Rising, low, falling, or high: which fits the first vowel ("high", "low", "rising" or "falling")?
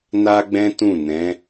high